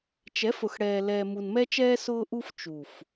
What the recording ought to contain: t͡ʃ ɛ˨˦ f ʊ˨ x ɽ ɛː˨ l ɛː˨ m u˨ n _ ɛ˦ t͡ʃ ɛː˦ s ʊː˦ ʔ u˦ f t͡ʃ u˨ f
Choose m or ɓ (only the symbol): m